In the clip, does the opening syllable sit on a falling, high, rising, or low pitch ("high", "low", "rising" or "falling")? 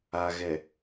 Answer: low